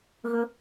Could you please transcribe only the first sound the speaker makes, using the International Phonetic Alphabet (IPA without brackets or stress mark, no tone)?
ɣ